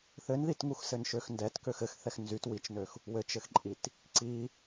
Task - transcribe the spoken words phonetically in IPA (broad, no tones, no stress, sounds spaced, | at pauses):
θ ɘ n ð i t ŋ u x s ɘ n ʃ ø x n d ɛ t k ø x ɘ x θ ɛ x n z y t w i t͡ʃ n ø x | w ɘ t͡ʃ ɘ x ǃʼ i t | ǀ i